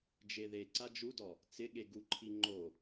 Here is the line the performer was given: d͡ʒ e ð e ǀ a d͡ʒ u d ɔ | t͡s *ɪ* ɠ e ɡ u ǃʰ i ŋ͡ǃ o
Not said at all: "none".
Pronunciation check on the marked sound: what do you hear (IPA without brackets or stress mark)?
ɪ